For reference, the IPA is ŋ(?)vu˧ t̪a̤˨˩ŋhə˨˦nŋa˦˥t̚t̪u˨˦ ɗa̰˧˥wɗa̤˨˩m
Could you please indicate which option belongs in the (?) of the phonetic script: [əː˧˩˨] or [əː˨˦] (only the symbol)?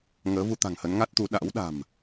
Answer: əː˨˦